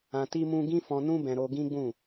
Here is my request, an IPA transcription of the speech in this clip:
ã˧ t i˦ m ũ˦ ɡ ĩ˦ f ɔ̃˧ n ũ˦ b ɛ̃˧ ɾ o˦ ɡ ĩ˦ ɡ͡b ũ˦˨

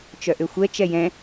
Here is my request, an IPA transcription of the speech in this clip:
t͡ʃ œ ʔ ʏ xʷ ɛ t͡ʃ ɛ j ɛ̃

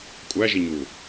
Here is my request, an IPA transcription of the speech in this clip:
kʷʼ æ ʒ i ɲ u

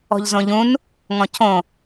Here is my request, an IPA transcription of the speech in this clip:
ɔ̤ ʎ z õ ʎ ũ n | ŋ ɔ̃ cʰ õ

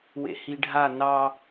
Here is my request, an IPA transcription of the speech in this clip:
w ḛ h i ɖʱ a n ɑ

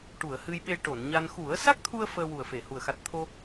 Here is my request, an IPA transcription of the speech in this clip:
ʈ u˨˩˨ ə̯ h ɨ˧ j ɓ e˧ ʈ o˨˩˨ n ɲ a˧ n x u˨˩˦ ə̯ s a˦˥ k̚ t̪ʰ u˧ ə̯ f əː˧ w u˨˩ ə̯ f e˨˩˨ h u˨˩ ə̯ x a˨˩ t̚ t̪ʰ o˧

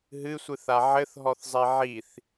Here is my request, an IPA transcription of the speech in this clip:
ɦ ɨ sʷ ɨ θ a ʕ ɘ θ ɦ ɔ θ zˤ i ʕ i θ

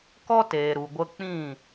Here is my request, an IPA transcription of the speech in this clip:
k ɔ˦ t eː˨ ɾ u˨ ɡʷ ə˧ k͡p ĩ˦˨

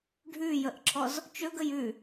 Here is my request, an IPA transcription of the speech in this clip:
ɖʱ ʉ j ə ʔ ǁʰ ɔ z | t͡ʃ ɵ ɡ ə j ʉ

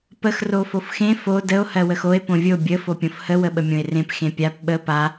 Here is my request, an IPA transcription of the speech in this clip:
p ə x r o f o f x ẽ f o d ə o̯ h ɜ w ə x o e̯ p õ vʲ o bʲ ə f o pʲ õ f h ə w ə ɓ ə mʲ õ e̯ r ẽ p x ẽ pʲ a p ɓ ə p a

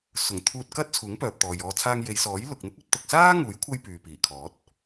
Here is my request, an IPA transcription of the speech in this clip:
s ʊ˨˩ ŋ t̪ʰ uː˧ t̚ k ɐ˥ t̚ t͡sʰ uː˨˥ ŋ p œː˨ p̚ t̪ ɔː˨ j ɔː˧ t͡sʰ aː˧ ŋ j e˨˧ j s ɔː˨˥ j l ʊ˨ k̚ n̪ ɪ˥ k̚ ɵ˧ t̚ t̪ ʊ˨ k̚ s aː˥ ŋ uː˨˥ j kʷʰ ɐ˥ j p yː˨ p iː˨˩ kʰ ɔː˨˥ t̚

